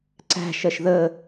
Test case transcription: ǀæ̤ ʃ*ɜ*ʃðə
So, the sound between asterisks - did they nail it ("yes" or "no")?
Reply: yes